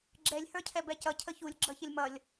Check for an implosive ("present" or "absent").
absent